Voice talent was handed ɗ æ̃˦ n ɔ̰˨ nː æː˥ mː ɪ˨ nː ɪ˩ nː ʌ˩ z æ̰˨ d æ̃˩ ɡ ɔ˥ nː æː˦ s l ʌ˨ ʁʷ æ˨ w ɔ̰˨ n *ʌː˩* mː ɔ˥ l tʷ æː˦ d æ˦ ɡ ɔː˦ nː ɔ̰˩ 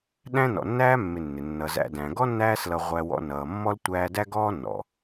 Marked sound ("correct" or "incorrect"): correct